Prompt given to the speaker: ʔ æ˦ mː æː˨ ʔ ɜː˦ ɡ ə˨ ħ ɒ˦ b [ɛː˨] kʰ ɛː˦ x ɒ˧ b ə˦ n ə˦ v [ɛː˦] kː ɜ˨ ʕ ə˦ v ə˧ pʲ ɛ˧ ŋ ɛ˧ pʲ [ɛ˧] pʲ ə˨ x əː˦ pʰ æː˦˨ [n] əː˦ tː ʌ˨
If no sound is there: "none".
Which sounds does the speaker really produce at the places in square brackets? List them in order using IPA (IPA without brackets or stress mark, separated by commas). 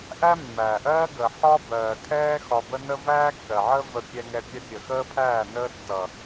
ɜː˨, æː˦, ɛ˧, n